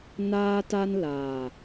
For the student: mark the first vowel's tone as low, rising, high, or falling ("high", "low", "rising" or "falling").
high